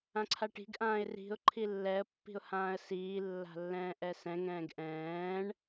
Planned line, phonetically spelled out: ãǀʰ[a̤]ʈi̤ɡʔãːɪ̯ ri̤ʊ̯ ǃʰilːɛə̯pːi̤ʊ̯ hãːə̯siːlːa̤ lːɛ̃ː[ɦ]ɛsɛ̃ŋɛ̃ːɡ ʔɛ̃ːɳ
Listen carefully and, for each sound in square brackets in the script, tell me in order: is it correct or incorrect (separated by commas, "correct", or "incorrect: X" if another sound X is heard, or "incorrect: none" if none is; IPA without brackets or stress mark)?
incorrect: a, incorrect: ʔ